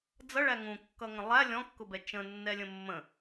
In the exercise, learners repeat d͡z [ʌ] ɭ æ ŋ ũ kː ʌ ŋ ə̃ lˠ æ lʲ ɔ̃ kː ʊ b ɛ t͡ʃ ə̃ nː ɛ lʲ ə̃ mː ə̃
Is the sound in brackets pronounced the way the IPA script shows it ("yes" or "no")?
yes